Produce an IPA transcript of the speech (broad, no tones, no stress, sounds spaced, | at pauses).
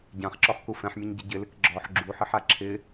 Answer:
ɟ ã χ ǁ ɔ χ k u f ɛ̃ ħ mʲ ɐ ɲ ɟ ɪ ɟ ɪ l ɪ k ɡ͡ǁ ɔ ħ ɡ͡ǁ u ħ ɪ ħ a ǁʰ ɪ